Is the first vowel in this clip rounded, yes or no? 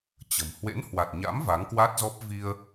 no